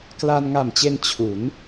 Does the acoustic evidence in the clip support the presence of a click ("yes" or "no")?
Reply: no